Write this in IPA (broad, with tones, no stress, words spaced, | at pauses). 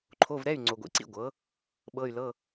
ǃʰo˧˥˧vɾɛ˧˥˧y̯ ŋ͡ǀo˨ɡʷḭ˨ǀḭ˦˨ ɡʷɤ˩˥ | ɓɤ˧˥˧y̯lɤ˧˥˧